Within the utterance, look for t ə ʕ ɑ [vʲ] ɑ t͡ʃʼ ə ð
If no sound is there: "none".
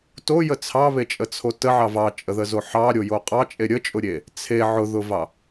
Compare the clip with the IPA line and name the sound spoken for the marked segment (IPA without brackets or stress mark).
v